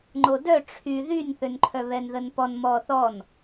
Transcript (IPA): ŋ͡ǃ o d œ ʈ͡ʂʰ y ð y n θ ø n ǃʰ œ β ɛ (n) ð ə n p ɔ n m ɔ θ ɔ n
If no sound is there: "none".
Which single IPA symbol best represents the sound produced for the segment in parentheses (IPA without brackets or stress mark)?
n